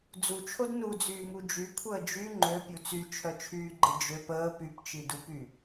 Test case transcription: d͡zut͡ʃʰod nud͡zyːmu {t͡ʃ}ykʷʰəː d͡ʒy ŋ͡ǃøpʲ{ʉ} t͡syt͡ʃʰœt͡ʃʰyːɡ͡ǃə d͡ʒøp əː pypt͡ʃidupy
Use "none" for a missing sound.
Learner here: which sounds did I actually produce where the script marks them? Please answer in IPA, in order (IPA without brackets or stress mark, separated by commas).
d͡ʒ, u